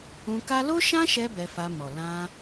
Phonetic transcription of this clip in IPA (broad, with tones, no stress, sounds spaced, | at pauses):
ũ˧ k a˦ l o˦ ʃ ã˦ ʃ ɛ˧ b ɛ˧ f a˧ m ɔ˨ l ã˧